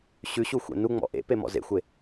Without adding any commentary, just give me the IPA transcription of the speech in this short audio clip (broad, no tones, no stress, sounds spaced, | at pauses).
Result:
ɕ ʉ ɕ u xʷ ḛ n u ŋ͡m ɔ̰ ʔ ḛ p e m ɔ̰ z ḛ xʷ e